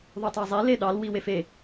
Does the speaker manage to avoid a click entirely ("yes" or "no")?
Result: yes